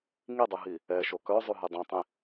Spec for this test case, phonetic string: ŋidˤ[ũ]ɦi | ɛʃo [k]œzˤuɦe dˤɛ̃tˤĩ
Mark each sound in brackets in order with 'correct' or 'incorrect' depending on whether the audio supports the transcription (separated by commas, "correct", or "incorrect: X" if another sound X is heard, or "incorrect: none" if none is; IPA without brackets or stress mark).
incorrect: u, correct